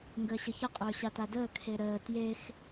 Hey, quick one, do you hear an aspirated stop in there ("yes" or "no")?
yes